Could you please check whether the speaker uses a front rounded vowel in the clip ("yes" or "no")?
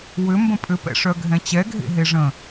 yes